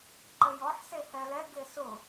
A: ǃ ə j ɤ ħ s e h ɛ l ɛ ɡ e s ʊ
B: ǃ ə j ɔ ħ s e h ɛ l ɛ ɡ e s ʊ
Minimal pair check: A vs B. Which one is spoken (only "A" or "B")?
B